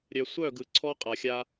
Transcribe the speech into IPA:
ɾʲ œ˨ sʷ œ˦˨ ɡ ɯ˨ ǀʰ ɔ˦ qʼ a˨ xʲ a˦

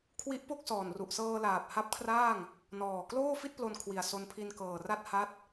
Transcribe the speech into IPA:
kʰ w i˦˥ ʔ p o˥˩ k̚ s ɔː˨˩ n r u˨˩ ʔ s ɤː˧ l aː˨˩ p̚ h a˦˥ p̚ kʰ r aː˥˩ ŋ | n ɔː˨˩ k l oː˥˩ f i˥˩ t̚ p l o˧ n kʰ w i˨˩ a̯ s o˧ n pʰ i˧ n k ɤː˨˩ r a˦˥ t̚ h a˦˥ t̚

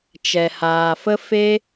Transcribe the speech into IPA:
t͡ʃ ɛ˨ h aː˨ f ə˦ f e˦

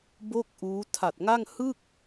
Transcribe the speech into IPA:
b o˥˩ k̚ ʔ uː˦˥ tʰ a˨˩ t̚ ŋ a˥˩ ŋ h ɯ˥˩ k̚

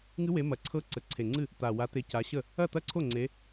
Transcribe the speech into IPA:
ŋ ɨ˦˥ w e˨˦ m ɐ˨˩ ǀʰ ɤ˦˥ ǀ ə˨˩ ǀʰ e˨˩ ŋ͡ǀ ɨ˥˩ | t̪ a˨˩ w a˨˦ t̪ e˨˦ c a˨˦ ɕ ə˥˩ | ɐ˥˩ t̪ ɐ˥˩ ǀʰ o˥˩ ŋ͡ǀ e˨˦

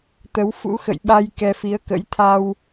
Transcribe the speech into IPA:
t̪ ə˨˦ w f ṵ˧˥ x ə̰˧˨ j ɓ a˧ j k ɛ˧ f i˨˦ ə̯ k ə̰˧˥ j t̪ʰ a˧ w

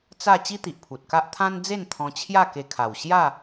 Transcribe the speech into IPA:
t͡s a˥˧ t͡ɕ i˦ t̪ i˨ ʔ pʰ u˨ t̚ k a˦ ʔ t̪ʰ ã˦ n d͡z e˥˧ n t̪ʰ ɔ̃˧ t͡ɕʰ j a˥˧ k e˧ kʰ a˨˩ w ɕ j a˥˧

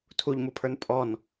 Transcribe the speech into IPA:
tʰ u ʎ m u pʰ ə˞ n pʼ ɔ n

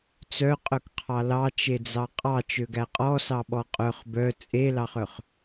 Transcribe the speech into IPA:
t͡s œ qʼ œ k qʰ ɑ l ɑ t͡ʃ e d͡z ɑ qʼ ɑ t͡ʃ ø ɡ æ qʼ ɔ s ɑ ɓ ɔ qʼ œ χ b œ t͡sʼ e l ɑ χ œ χ

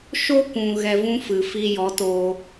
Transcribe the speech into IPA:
ʃ o˦ kʷ ũ˨ ɣ ɛ˨ v ũ˧ f ɨ˨ f i˧ j ɔ˨˦ t o˧

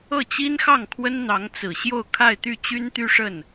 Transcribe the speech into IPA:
ɤ˥˩ t͡ɕ i˥ n x ɑ˥˩ ŋ kʰ w ə˥ n n̪ ɑ˧˥ ŋ t͡s ɹ̩˨˩ ɕ j o˥˧ ʊ̯ kʰ a˥˧ ɪ̯ t̪ y˥˩ t͡ɕ y˥ n t̪ y˥ ʂ ə˥˩ n

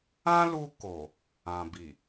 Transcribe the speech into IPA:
ã˦ l u˧ k o˨ | ã˨ b i˨

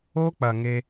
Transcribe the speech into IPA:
o˦ k͡p ɐ˨ ŋ e˧

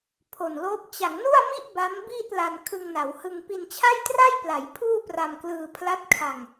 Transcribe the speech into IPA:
pʰ o˨˩ n l oː˦˥ p̚ t͡ɕ a˩˦ ŋ n u˥˩ a̯ m i˥˩ ʔ b a˦˥ m b iː˥˩ t̚ l a˧ n kʰ ɯ˧ ŋ n a˩˦ w h ɯ˧ ŋ p i˧ n t͡ɕʰ a˥˩ j t r a˥˩ j p l a˩˦ j pʰ uː˥˩ p r a˧ m k l ɯː˧ pʰ l a˦˥ t̚ kʰ a˧ ŋ

